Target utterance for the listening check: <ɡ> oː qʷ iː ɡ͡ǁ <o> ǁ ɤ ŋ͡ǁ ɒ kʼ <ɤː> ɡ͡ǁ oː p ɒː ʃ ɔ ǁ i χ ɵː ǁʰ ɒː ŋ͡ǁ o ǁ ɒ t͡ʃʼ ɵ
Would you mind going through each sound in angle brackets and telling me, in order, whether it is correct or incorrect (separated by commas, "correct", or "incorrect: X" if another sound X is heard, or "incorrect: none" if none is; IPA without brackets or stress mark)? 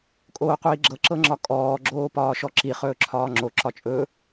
incorrect: kʼ, incorrect: ɤ, incorrect: ɔː